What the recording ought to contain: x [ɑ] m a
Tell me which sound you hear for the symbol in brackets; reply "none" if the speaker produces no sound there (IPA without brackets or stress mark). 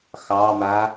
ɑ